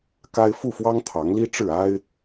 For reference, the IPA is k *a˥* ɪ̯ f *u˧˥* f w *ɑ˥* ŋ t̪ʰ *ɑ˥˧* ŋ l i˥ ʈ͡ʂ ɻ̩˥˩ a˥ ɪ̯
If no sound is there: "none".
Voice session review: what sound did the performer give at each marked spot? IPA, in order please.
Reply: a˥, u˥˩, ɑ˥, ɑ˧˥

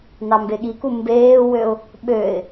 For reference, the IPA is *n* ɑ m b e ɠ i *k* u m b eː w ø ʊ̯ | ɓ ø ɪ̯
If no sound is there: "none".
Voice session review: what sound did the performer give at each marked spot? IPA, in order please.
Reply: n, k

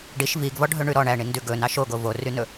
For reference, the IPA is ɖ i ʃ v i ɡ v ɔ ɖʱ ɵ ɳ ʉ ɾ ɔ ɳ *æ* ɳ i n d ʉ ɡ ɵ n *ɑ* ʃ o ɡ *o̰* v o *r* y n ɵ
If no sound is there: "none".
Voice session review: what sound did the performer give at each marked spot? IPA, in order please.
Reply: æ, ɑ, o, r

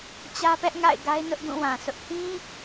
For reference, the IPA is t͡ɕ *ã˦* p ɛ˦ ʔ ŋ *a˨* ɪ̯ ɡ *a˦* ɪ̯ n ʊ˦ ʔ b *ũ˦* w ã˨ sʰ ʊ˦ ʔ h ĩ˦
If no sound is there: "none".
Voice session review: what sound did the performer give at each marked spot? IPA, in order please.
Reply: ä˦, a̰˦˨, a˦, ũ˦˨

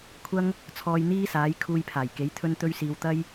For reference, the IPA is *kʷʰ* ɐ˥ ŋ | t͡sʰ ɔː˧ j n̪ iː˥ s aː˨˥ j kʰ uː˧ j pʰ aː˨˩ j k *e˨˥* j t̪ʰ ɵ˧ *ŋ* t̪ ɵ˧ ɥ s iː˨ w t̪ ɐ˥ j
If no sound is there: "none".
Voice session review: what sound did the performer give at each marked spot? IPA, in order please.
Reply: kʷʰ, e˨˥, n

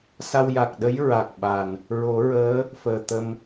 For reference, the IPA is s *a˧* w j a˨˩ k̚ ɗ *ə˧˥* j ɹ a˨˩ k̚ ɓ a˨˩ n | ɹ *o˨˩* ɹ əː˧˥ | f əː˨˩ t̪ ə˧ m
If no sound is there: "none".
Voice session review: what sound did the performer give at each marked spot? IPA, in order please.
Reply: a˧, ə˧˥, o˨˩˦

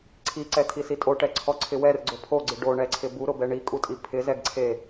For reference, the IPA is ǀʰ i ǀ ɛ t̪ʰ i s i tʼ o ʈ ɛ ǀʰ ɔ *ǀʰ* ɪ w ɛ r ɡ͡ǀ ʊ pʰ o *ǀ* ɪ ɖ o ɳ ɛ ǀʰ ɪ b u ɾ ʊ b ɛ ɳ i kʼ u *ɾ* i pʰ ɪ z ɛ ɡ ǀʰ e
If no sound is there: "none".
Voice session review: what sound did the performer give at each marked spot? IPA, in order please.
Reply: ǀʰ, ɡ͡ǀ, tʼ

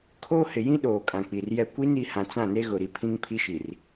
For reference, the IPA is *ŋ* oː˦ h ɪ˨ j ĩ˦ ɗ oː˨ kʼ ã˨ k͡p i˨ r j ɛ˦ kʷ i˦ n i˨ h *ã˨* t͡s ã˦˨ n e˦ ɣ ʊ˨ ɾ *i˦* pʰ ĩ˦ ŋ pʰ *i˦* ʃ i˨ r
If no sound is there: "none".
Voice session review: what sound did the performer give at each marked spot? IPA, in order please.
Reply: kʰ, ã˨, i˦, i˦

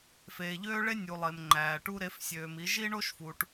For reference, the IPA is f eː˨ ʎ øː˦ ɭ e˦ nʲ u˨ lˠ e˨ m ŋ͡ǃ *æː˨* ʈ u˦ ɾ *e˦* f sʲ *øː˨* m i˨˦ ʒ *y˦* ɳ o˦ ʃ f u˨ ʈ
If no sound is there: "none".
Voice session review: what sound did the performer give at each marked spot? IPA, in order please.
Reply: æː˨, e˨˦, øː˨, i˦

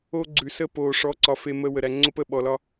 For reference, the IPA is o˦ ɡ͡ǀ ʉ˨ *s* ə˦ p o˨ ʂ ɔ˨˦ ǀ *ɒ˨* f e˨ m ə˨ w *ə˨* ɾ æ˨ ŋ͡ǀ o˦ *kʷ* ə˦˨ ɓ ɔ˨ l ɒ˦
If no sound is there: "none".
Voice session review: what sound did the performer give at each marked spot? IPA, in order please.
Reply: s, ɒ˨, ə˨, p

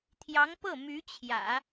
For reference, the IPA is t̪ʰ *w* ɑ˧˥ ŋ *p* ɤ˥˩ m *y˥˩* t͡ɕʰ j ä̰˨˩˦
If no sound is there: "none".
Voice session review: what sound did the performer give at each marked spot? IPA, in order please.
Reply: j, p, y˧˥

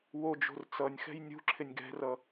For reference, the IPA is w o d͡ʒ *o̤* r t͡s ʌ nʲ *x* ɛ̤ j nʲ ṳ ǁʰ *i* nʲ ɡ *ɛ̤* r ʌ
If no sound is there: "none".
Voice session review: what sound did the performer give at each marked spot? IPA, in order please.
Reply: o̤, x, ɪ, ɛ̤

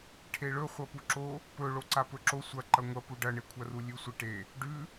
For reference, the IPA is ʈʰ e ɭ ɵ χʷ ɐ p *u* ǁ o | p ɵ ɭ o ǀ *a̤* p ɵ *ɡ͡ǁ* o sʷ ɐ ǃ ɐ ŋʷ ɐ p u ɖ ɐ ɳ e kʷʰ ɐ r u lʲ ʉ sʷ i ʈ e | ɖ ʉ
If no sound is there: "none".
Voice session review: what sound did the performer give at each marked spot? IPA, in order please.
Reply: u, a, ǁ

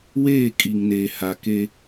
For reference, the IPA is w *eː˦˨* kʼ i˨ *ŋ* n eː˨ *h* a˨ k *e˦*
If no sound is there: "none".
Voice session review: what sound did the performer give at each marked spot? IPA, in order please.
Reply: eː˦˨, ŋ, h, e˦

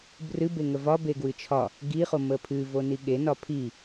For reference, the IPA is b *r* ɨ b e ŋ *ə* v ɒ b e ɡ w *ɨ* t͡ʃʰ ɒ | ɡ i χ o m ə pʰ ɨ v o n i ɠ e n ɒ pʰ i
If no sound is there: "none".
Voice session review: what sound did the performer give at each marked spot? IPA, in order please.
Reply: r, ə, ɨ

